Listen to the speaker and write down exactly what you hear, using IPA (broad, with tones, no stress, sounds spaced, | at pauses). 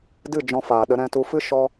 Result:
d ɨ˦˨ d͡ʒ ɔ̃˧ f aː˨ ɗ ə˧ ɾ ɛ̃˧ t u˧ f ɨ˦ ʃ ɔ˧